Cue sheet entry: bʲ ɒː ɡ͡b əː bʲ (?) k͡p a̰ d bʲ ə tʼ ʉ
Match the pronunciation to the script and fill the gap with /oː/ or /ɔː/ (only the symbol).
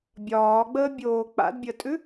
oː